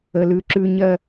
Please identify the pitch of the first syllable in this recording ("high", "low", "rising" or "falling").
low